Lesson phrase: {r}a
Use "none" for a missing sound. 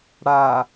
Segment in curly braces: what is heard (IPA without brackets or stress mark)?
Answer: ɽ